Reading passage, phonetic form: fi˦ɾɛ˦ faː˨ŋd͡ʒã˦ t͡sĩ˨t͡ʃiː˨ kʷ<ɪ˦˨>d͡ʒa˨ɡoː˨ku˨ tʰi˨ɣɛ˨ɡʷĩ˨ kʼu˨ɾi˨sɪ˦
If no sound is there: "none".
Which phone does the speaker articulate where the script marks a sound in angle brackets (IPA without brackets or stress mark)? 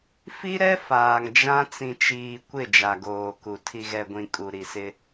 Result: ɪ˦˨